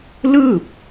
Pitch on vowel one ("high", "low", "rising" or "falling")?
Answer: falling